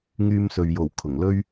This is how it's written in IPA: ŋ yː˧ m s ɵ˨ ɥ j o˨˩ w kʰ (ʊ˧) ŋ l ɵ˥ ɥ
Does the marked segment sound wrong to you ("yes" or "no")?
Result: yes